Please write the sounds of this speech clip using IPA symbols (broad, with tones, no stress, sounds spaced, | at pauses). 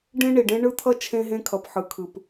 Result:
ɖ ẽ˦ ɳ i˨ ɖ ẽ˦ ɳ ɯ˦ t̪ʰ ʌ˦ t͡ʃʰ ẽ˦ ɦ ẽ˦ kʰ ʌ˨ p ħ ɯ˨ kʰ ɯ˨ p